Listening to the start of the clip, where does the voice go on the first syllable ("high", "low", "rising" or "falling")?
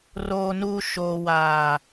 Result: low